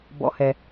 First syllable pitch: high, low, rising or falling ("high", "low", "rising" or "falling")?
low